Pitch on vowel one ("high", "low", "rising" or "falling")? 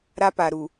high